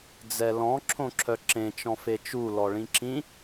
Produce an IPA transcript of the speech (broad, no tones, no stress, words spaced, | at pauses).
d͡zɛlɔ̃ ǁʰõǁʰœǁẽ t͡ʃɔ̃fet͡ʃu lɔɭĩǁĩ